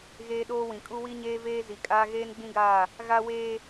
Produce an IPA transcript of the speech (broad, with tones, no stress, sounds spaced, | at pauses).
ɣ eː˦ ɗ oː˦ w ĩ˨ kʼ u˦ w i˦ ɲ eː˦ v eː˦ z i˨ kʼ aː˦ ɣ eː˦ n ɡ͡b ĩ˦ ɡ aː˦˨ | ɣ a˦ w eː˦